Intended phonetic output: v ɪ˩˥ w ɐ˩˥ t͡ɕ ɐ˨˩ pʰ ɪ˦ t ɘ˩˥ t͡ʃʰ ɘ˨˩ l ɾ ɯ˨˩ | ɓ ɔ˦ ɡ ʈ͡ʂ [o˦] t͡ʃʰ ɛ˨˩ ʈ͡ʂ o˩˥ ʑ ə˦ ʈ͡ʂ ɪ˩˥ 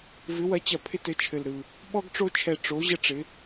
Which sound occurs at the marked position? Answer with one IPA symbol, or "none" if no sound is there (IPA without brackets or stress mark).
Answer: o˦